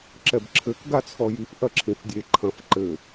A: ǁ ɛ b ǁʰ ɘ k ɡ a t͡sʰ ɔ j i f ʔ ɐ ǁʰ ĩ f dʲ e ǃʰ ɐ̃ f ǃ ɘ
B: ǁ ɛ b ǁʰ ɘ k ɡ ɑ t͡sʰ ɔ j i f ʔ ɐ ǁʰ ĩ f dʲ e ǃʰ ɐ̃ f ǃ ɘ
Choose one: A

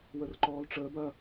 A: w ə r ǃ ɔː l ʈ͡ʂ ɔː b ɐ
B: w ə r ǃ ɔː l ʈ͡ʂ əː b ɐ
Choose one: B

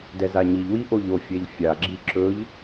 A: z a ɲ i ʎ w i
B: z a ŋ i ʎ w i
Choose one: A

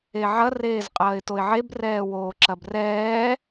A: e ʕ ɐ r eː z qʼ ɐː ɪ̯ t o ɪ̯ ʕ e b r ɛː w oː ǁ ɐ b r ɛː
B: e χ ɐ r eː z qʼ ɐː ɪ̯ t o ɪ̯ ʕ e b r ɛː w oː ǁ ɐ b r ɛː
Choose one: A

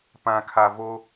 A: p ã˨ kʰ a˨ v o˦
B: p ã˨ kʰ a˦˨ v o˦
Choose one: A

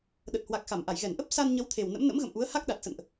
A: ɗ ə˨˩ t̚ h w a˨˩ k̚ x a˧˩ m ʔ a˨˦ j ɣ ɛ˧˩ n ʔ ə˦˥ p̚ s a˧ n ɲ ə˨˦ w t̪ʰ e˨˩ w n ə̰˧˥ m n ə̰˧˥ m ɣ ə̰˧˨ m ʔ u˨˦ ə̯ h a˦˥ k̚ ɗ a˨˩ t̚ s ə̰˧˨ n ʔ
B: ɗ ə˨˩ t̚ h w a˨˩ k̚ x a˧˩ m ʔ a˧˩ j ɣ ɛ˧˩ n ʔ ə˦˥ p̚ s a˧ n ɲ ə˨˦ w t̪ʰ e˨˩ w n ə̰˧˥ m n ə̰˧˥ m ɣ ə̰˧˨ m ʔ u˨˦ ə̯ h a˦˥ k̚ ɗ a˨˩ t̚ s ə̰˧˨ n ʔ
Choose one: B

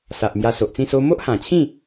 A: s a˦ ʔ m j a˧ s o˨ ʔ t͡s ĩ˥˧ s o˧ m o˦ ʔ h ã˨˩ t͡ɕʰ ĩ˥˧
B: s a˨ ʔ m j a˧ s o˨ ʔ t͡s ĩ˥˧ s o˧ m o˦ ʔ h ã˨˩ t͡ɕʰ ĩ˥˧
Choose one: B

